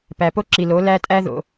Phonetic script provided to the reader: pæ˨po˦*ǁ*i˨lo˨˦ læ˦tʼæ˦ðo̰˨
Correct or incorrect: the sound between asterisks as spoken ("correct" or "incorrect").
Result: correct